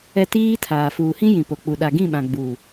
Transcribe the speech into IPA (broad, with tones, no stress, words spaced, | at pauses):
ɛ˦ tiː˦tʰaː˨ fuː˨hĩ˦jĩ˨ po˨k͡pu˨ ɗa˨ɡĩ˦˨ɓã˨ ɡ͡buː˨